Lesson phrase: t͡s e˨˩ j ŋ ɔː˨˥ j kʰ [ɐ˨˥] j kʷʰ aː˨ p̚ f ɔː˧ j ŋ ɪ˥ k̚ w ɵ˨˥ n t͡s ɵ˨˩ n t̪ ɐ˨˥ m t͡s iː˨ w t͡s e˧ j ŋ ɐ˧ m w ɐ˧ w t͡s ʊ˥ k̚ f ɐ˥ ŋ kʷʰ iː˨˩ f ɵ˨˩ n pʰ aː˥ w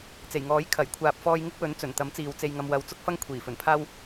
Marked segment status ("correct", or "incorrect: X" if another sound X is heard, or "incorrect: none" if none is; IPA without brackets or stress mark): incorrect: ɐ˨˩